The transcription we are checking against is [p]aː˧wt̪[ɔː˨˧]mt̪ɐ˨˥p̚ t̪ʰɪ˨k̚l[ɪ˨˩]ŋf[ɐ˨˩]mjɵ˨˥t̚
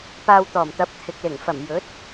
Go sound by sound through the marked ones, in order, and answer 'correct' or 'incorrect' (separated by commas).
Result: correct, incorrect, correct, correct